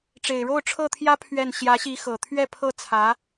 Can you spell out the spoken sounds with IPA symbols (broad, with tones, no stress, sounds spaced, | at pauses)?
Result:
ʈ͡ʂ e˨˩ ɪ̯ ɻ o˥˧ ʊ̯ ʈ͡ʂʰ ɤ˥˩ t̪ʰ j ä˥ pʰ ɥ ɛ˥˩ n ɕ j ä˧˥ ɕ i˧˥ x ɤ˨˩ t̪ʰ ɥ ɛ˥˧ pʰ ɤ˥˩ t͡sʰ ä˧˥